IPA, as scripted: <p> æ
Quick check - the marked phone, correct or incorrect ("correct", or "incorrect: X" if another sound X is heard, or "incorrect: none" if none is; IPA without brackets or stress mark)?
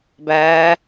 incorrect: b